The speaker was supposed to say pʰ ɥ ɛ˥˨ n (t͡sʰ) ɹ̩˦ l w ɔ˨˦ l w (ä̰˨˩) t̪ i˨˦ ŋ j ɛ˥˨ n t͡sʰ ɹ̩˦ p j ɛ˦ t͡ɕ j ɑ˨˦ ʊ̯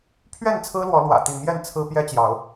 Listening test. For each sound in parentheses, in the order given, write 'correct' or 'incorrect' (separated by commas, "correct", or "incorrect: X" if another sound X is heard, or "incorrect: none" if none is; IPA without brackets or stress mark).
correct, correct